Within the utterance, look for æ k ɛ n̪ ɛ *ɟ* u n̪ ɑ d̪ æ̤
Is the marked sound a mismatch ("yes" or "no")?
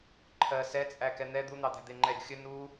yes